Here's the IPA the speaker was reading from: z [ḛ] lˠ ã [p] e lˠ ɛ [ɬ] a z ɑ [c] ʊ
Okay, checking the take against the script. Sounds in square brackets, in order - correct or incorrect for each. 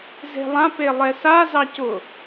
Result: incorrect, correct, incorrect, correct

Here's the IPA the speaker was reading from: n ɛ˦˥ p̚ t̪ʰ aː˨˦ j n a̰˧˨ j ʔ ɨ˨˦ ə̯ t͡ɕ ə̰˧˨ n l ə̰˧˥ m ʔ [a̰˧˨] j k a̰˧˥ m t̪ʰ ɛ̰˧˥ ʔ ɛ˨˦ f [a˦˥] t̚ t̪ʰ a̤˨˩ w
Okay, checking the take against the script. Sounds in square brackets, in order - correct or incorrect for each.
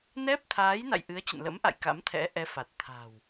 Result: correct, incorrect

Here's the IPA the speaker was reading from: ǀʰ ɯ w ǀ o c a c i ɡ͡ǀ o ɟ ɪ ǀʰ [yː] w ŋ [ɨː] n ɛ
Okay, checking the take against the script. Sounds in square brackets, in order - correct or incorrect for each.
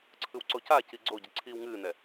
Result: incorrect, correct

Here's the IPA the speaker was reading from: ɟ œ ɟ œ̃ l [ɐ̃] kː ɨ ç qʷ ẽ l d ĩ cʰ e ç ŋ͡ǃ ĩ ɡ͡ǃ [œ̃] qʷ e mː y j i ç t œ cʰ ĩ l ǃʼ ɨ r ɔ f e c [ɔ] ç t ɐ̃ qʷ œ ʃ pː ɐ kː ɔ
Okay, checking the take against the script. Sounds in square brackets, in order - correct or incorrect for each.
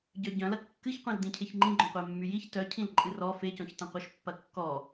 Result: incorrect, correct, incorrect

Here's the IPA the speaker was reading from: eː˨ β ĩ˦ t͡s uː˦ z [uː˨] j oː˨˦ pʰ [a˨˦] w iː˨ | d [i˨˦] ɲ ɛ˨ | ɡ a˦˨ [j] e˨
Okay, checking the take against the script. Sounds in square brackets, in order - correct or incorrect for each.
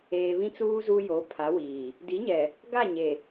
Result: incorrect, correct, correct, incorrect

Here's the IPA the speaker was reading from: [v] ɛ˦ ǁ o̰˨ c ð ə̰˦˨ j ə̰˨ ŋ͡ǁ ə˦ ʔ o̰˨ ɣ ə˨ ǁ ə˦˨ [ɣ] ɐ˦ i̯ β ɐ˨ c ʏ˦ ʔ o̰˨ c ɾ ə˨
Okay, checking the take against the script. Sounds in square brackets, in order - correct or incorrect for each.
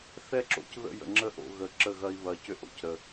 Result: incorrect, correct

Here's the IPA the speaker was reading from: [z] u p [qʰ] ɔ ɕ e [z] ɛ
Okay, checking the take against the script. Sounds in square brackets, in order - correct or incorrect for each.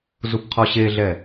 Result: correct, correct, incorrect

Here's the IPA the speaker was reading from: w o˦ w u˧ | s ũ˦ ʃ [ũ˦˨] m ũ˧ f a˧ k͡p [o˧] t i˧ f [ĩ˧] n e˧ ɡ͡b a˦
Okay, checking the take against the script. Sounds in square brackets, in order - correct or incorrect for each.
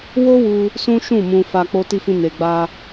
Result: correct, correct, correct

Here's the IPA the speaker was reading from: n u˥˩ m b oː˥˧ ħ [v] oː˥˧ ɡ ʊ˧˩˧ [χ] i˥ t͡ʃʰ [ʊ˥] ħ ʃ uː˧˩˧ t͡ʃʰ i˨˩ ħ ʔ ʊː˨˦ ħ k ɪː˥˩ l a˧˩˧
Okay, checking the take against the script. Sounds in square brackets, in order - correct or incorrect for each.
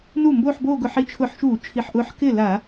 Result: incorrect, incorrect, incorrect

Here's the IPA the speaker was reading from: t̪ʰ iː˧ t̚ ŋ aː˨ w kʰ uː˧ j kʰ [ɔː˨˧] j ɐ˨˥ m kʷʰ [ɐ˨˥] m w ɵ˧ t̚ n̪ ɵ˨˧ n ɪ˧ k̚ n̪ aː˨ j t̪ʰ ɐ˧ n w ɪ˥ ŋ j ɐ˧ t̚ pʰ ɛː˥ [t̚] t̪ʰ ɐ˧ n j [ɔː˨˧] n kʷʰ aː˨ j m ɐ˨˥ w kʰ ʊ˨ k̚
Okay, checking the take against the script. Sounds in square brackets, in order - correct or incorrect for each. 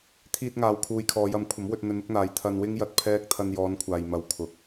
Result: correct, correct, incorrect, correct

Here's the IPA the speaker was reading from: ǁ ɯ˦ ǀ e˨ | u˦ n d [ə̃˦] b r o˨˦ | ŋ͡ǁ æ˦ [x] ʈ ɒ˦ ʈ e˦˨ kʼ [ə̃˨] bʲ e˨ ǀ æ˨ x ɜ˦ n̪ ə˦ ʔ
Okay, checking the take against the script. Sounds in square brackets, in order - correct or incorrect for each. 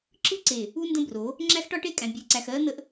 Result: correct, correct, incorrect

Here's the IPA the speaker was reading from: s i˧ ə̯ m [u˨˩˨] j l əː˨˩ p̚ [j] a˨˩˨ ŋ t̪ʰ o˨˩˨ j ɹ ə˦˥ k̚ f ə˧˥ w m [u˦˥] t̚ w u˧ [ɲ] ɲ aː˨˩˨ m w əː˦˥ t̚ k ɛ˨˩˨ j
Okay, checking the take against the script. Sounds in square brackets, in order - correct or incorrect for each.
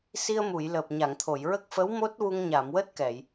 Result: correct, incorrect, incorrect, incorrect

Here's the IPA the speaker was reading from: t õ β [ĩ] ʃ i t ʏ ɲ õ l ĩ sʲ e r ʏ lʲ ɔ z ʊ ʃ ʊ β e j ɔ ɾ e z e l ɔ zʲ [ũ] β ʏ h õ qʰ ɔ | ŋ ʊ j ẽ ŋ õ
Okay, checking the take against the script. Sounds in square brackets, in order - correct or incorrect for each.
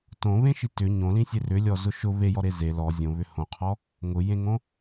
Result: incorrect, incorrect

